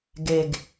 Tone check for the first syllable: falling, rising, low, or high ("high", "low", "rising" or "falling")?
low